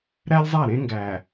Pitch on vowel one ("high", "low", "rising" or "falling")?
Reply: high